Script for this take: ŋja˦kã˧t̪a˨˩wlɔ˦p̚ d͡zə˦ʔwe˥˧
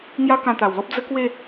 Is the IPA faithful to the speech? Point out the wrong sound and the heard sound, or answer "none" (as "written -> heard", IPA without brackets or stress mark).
ʔ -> k